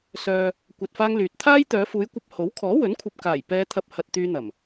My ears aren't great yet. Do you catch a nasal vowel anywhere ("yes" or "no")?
no